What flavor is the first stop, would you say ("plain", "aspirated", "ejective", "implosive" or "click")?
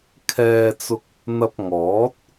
aspirated